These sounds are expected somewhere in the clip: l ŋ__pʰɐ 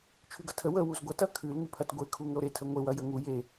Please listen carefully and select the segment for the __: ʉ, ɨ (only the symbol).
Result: ʉ